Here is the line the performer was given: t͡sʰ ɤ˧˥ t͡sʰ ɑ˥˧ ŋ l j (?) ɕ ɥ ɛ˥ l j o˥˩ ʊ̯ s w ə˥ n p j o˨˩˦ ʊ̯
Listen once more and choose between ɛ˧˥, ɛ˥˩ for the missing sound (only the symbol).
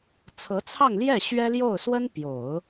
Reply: ɛ˥˩